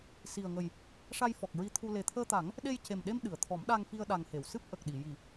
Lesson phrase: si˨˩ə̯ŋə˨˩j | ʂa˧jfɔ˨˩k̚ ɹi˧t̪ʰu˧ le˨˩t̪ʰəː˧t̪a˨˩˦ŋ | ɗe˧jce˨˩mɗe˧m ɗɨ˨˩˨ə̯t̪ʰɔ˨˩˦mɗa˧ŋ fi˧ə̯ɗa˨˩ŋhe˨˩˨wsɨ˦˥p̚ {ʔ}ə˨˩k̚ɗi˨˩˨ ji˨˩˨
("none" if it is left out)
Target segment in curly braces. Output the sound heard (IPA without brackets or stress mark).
ʔ